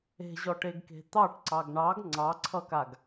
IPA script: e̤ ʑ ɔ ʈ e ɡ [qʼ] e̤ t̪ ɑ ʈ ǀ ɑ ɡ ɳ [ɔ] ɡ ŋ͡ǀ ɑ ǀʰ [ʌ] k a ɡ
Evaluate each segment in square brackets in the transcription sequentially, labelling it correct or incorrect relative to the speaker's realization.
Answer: incorrect: k, incorrect: ɑ, correct

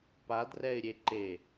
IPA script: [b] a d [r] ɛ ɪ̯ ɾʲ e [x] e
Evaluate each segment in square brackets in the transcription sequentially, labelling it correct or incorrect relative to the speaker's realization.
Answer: incorrect: p, correct, incorrect: ǃ

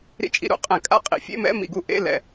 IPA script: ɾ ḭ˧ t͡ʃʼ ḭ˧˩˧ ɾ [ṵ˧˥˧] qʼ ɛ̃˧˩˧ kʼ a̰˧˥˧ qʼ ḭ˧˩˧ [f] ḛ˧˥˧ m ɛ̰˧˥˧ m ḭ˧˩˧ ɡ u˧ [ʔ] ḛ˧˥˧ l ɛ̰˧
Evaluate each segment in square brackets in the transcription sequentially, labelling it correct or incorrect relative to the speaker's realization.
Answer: correct, incorrect: fʲ, correct

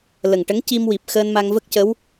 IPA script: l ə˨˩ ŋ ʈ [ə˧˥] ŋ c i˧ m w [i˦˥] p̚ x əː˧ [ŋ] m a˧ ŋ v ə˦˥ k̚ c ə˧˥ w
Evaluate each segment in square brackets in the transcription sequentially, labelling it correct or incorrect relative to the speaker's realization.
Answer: correct, incorrect: i˨˩, incorrect: n

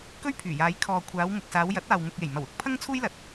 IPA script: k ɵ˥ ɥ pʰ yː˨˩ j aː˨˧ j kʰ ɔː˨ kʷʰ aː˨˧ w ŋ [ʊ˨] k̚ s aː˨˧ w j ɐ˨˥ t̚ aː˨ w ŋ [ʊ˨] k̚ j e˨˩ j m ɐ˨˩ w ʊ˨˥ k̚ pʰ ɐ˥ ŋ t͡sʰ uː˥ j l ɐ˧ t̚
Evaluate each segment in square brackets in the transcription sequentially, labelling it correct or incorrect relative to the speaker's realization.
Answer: correct, correct

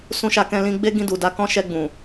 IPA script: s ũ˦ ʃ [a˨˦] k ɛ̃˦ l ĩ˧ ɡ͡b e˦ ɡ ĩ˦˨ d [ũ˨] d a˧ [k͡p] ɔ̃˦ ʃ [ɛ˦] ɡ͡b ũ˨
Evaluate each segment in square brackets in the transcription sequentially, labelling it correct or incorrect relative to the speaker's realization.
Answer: incorrect: a˧, incorrect: u˨, incorrect: k, incorrect: ɛ˧

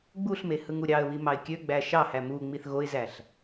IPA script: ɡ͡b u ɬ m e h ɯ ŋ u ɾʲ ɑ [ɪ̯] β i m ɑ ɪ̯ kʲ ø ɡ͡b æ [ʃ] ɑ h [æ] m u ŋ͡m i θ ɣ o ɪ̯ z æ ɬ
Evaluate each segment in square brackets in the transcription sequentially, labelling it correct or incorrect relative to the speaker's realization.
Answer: incorrect: ə̯, correct, correct

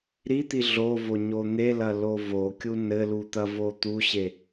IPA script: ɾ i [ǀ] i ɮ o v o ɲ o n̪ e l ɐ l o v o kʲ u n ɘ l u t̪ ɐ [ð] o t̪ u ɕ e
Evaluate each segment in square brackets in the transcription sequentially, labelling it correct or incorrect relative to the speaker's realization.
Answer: incorrect: t̪, incorrect: v

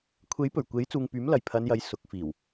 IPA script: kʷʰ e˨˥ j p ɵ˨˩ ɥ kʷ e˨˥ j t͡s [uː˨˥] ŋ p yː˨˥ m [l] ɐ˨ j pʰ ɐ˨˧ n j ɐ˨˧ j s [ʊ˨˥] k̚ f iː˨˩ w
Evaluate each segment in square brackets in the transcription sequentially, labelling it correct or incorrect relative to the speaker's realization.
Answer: incorrect: uː˨, correct, correct

